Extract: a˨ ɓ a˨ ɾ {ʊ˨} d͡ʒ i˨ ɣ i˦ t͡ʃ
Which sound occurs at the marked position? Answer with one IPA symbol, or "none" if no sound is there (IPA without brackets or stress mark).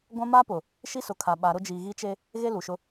ʊ˦